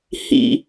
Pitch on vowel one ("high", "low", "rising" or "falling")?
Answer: low